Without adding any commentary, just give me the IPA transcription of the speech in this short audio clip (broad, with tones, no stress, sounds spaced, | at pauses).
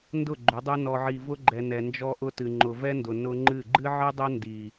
n d ʊ˦˨ ɡ͡ǃ ʏ˨˦ dˤ ɵ˦ n ɔ˨ ʕ i˨ v ʊ˦ ɡ͡ǃ ɛ˨ n ɛ˨ n d͡ʒ ɔ˦ ʔ ʊ˦ t ɨ˨ ŋ͡ǃ ʊ˨ v ɛ˦ n d ʊ˨ n ʊ˦ ŋ͡ǃ ɨ˦˨ ɡ͡ǃ ɨ˦ ʕ ɨ˦ dˤ ʊ˦ n d i˨